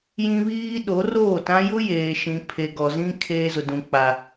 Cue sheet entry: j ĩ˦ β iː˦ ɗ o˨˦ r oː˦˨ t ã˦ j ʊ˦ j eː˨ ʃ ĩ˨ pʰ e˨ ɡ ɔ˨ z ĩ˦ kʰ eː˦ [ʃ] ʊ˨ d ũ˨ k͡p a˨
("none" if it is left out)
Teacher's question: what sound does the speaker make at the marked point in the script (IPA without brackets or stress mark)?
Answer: z